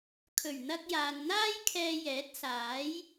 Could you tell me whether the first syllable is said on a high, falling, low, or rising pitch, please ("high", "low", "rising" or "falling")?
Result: low